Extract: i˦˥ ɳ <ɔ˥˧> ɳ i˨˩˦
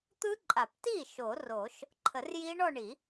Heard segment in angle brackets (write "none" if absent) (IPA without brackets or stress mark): ɔ˥˧